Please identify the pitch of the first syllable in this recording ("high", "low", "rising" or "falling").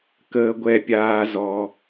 low